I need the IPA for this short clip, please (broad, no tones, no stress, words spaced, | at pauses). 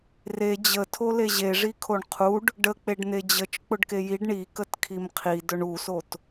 re d͡ʑətʰo leʑeʐi kʰoɳqʰuɖ | ɖək͡peɖ n̪ed͡ʑət͡ʃ k͡pʊɖkejiɖ ɳi kətkʰimqʰi dʊɳusot